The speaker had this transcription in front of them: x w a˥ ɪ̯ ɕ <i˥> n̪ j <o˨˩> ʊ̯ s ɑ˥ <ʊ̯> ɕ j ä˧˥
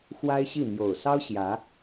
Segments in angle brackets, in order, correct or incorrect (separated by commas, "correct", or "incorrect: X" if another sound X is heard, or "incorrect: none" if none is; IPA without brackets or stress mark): incorrect: i˥˩, correct, correct